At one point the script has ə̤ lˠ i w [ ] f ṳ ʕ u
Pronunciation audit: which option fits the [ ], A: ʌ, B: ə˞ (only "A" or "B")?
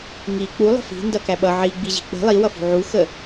A